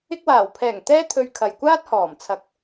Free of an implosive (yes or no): yes